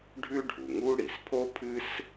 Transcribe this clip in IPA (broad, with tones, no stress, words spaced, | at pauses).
ɖʱʉ˥ɖʱu˩ŋu˥ ɽi˩spʰo˥pʰɨ˥s